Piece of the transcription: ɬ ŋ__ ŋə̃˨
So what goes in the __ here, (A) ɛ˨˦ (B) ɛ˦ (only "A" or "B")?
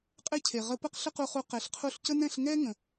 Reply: B